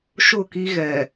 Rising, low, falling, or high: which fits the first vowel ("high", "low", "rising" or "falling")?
falling